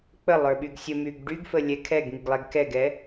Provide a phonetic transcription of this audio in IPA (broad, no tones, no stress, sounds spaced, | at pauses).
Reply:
k͡p ə lˠ ə˞ ɓ y ɡ sʲ ə m y ɡ ɖ y ɡ f ə lʲ ɛ kʰ ɛ ɡ ŋ i ɡ lˠ ɛ ɡ k ɛ ɡ ɛ